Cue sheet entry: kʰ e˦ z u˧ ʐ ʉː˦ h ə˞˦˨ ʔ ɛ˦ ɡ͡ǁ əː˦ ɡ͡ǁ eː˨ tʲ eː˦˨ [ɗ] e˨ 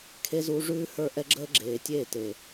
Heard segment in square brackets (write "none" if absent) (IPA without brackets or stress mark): t